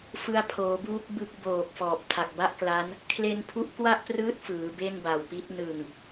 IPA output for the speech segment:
f ɯ˧ a̯ pʰ oː˩˦ b uː˦˥ k̚ b ɯ˦˥ k̚ b oː˨˩ k̚ f ɔː˨˩ p̚ tʰ a˨˩ k̚ b a˥˩ ʔ k l a˦˥ n | kʰ l e˧ n pʰ u˦˥ ʔ k w a˥˩ ʔ p r ɯː˦˥ t̚ f ɯː˩˦ b e˥˩ n b a˨˩ w p i˦˥ t̚ n ɯ˨˩ ŋ

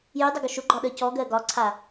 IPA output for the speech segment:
j y dˤ ə ɡ ʊ ʃ ʊ ɡ͡ǃ ɒ ɗ ə c ɔ ɡ ɜ ɡ ɒ ǀʰ a

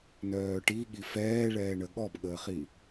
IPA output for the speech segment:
n œː ʈ i ɠ i f ɛː ɭ ɛː ɳ ə ɠ ɔ b ɠ əː χ i

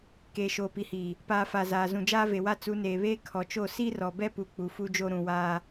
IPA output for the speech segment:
k eː˨ ʃ oː˨ p i˨ h iː˨ | p aː˨ f a˨ z aː˨ z ũ˨ d͡ʒ aː˦ v e˨ w a˦ t͡s u˨˦ n eː˨ β eː˦ kʰ ɔ˨ t͡ʃ o˦˨ s i˦ r ɔ˨ b ɛ˦ p u˨ k͡p u˨ f u˦ d͡ʒ o˦ ɾ ũ˨ w aː˦

